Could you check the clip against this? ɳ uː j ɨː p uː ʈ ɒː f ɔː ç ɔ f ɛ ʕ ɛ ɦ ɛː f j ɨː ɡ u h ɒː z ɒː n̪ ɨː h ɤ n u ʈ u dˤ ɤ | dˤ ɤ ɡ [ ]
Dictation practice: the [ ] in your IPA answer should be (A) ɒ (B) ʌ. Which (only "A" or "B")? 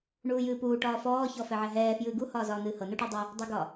A